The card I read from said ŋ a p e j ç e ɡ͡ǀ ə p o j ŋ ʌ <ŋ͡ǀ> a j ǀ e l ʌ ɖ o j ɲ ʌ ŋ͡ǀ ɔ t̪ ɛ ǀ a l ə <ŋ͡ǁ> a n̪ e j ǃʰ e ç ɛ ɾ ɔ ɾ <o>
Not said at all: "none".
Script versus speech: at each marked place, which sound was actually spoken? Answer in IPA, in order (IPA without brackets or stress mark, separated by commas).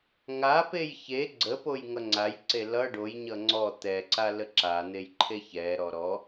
ŋ͡ǀ, ǁ, ɔ